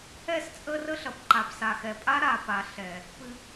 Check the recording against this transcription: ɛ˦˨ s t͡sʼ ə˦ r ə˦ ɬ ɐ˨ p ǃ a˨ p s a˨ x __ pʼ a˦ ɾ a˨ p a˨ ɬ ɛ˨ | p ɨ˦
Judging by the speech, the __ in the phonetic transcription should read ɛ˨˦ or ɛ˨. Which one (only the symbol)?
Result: ɛ˨